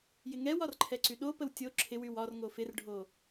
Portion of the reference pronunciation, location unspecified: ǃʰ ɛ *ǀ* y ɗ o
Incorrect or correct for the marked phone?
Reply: correct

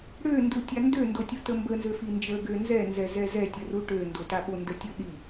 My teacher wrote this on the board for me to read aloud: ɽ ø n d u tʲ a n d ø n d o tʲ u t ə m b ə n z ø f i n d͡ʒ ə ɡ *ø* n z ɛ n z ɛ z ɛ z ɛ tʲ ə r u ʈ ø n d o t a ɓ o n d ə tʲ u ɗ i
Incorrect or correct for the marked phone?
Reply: correct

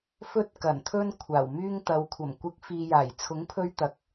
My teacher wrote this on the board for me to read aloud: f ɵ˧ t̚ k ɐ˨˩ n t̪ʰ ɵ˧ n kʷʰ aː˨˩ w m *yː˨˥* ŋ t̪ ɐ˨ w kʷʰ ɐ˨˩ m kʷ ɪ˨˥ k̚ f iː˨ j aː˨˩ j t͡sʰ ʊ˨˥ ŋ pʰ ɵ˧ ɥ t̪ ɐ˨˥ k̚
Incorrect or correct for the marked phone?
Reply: incorrect: yː˧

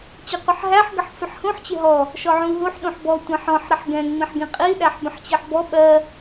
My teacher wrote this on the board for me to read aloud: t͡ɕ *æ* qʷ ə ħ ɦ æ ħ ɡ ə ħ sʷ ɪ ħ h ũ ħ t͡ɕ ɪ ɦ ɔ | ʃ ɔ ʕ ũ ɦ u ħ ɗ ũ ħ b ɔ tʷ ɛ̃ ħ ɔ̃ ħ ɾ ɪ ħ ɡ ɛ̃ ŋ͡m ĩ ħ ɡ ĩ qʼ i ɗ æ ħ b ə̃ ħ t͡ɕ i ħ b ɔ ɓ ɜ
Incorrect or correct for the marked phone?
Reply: incorrect: ɛ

